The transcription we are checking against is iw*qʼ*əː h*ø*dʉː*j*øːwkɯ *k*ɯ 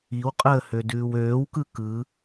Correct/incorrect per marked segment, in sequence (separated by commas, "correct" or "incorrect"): correct, correct, incorrect, correct